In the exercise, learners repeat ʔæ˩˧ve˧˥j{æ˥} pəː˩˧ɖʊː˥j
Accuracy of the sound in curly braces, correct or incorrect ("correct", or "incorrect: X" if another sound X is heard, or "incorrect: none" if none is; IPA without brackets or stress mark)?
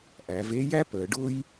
correct